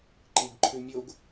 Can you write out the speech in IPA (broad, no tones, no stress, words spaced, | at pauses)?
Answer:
ǃiɡǃʰʉ mʲoɡ